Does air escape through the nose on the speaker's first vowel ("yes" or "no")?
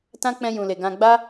yes